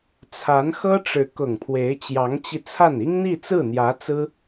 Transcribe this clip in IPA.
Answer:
t͡sʰ a˧˥ n x ɤ˥ ʈ͡ʂ ɻ̩˧˥ k ʊ˨˩ ŋ pʰ w e˧˥ ɪ̯ t͡ɕ j ɑ˧˥ ŋ t͡ɕ i˧ t͡sʰ a˥˩ n i˥ ŋ n̪ i˥˧ t͡s ɹ̩˥˩ n̪ j ä˧˥ t͡s ɹ̩˥

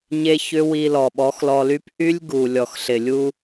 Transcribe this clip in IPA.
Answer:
ɲ e˦ ç ʏ˦ w i˧ l ɔ˨ ɓ ɔ˨˦ x l ɔ˧ l y˦ p ʔ y˦ lʲ ɡ u˨ lʲ ɔ˨ x ɬ ɪ˨ lʲ u˧

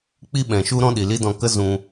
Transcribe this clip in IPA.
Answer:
k͡p i˦ ɓ ɛ̃˨ ʃ u˦ ɾ ɔ̃˦ ɗ i˨ l i˦ d ɔ̃˧ k ə˦ z ũ˧

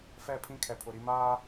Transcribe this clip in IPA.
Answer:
f ɛ˦˨ pʰ ĩ˦ kʰ ɛ˨ pʰ ʊ˨ ɾ i˦ m aː˦

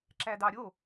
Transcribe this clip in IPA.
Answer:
ǁ æ d ɑ ɾʲ o

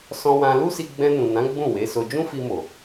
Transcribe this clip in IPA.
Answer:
s ɔ̃˧ w ã˧ l u˦ s i˧ ɡ͡b ɛ̃˧ n ũ˨ n ã˨˦ ɡ͡b ũ˦˨ w e˨˦ s o˧ d͡ʒ ũ˦ f i˧ m o˨

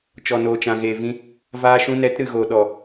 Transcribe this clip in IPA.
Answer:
t͡ʃ ɔ˨ n oː˨ t͡ʃ ã˨ ɣ eː˨ v ĩ˧ | v aː˧ ʃ ũ˧ n ɛ˨˦ t ɾ ɨ˨ ɣ oː˨ ɗ ɔ˨

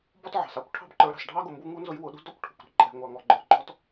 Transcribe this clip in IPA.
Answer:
b ɔ˦ t ʕ ɑ̤˩ s ɑ˥ kʷ ʈʰ ɑ̤˦ b ǃ ə˞˨ ɾ ɑ̤˩ s ɖʱ ɑ˥ ɡ ʊ˨ m b u˦ ŋ u˥ n z ʊ˦ j w ʊ˨ ɗ ṳ˥ d ɔ˥ kʷ ʈʰ ṳ˩ kʷ ɾ ɛ̤˦ ǃʼ ɛ̤˨ ŋʷ ɑ˨ ŋ ɔ˨ ɡ͡ǃ ə˞˨ ɡ͡ǃ ɔ˥ t

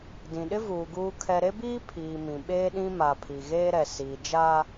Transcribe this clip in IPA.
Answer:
d ĩ˨ ɗ ɪ˦ v uː˨ ɡ uː˨ kʰ ɛ˨ ɾ e˦ b iː˦ pʰ iː˨ m ĩ˨ ɓ eː˦ ɗ ĩ˦ m a˨ pʰ i˨ ɣ eː˦ ɾ ɛ˨ s iː˨ d͡ʒ a˦

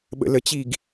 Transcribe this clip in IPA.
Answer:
ɓ ə̰ l ə t͡ɕ i ɡ

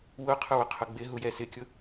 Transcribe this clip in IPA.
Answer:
w ʊ qʰ ʊ w ʊ qʰ ʊ ɡ͡b ɪ ɦ u j ɛ s ɪ kʲ ʊ

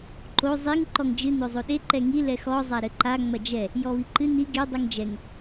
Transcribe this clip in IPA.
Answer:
ǃ o zˤ i ŋ ǃ ɔ ŋ d͡ʒ ɨ n o zˤ o ɗ e ǃ ɛ ŋ i l ɛ x ɔ zˤ a ɾ ɘ ǃ a ŋ͡m ɐ d͡ʒ ɛ | j ɔ β i ǃ ɨ n i ɡ e dˤ u ŋ d͡ʒ ɛ ŋ

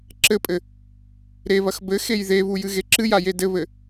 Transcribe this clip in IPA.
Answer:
ǁ ɘ pʼ ɘ | ɾ e β ɐ x b ɘ x e j ð e β u j ɨ ɣ e ǁ ɨ j a j e d ɘ β ɘ

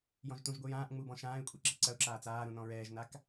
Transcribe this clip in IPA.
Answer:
j ɔ̃ ʒ t ũ ʒ ɡʷ ɨ j ãː ʔ ŋ͡m u b ɔ̃ ʃ ãː ɪ̯ kʷʼ ɛ ǁ ɨ ǀ ɐ ʊ̯ ǁ aː t͡s aː ɾ ũ n ɔ̃ ɹ ɛː ʒ n a k

